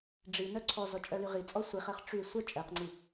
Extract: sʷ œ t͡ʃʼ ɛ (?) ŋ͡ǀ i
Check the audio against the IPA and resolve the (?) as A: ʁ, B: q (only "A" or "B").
B